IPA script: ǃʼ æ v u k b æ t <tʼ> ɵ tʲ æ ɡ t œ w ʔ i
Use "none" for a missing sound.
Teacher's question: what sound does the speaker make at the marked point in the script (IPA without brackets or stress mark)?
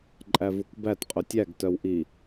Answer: qʼ